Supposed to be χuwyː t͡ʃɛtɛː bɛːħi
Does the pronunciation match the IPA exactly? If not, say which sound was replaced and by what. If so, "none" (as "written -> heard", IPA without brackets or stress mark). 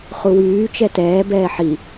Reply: none